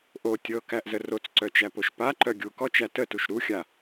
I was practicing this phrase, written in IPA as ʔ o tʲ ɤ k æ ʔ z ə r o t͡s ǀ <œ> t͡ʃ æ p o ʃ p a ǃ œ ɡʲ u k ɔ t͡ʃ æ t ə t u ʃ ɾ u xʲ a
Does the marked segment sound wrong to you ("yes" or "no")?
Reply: no